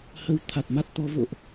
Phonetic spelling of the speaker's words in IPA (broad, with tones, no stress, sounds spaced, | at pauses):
h ə˧ w t̪ʰ a˨˩ t̚ m a˦˥ t̚ t̪ ɔ˨˦ v o̰˧˨ ʔ